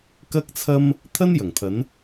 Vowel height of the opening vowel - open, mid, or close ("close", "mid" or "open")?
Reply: open